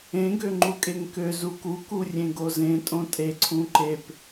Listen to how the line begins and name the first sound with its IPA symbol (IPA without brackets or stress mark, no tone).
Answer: ẽ